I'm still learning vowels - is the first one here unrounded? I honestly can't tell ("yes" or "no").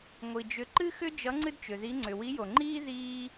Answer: yes